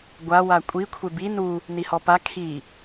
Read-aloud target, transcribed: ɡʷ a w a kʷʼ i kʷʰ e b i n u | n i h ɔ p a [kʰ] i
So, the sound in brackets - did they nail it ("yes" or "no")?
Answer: yes